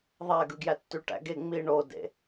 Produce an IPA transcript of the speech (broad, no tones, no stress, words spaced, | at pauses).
ðˤæɡɯ ɡjætːyʈæ̰ɡe ŋ͡mi ɳodḛ